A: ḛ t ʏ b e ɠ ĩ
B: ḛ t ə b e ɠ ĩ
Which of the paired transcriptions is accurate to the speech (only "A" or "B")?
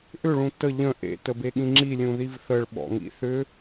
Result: B